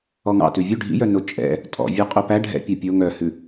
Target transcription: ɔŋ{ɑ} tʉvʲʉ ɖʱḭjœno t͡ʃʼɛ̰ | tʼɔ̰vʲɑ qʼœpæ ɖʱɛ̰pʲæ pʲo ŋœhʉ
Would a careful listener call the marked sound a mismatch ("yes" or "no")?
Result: yes